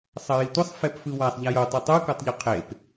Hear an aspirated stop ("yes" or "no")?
yes